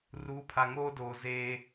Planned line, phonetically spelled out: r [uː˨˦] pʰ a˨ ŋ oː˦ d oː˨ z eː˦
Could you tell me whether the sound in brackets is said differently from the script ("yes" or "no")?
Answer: no